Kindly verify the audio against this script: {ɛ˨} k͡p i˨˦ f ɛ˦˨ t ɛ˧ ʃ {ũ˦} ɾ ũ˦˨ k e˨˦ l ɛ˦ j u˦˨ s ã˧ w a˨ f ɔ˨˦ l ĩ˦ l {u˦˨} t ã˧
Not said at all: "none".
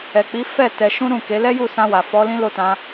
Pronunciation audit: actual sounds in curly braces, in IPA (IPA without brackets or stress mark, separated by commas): ɛ˨, ũ˦, o˦˨